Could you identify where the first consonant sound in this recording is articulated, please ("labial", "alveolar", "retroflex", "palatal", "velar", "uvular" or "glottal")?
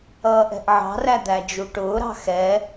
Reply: glottal